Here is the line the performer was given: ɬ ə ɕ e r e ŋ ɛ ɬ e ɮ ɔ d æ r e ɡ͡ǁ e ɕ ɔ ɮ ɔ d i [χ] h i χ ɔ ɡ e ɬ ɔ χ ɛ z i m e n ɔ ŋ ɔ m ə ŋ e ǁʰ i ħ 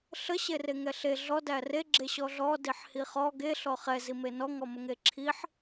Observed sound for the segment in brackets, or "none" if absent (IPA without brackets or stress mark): ħ